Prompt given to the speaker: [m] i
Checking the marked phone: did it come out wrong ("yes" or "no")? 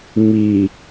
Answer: no